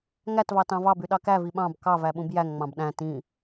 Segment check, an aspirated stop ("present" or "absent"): absent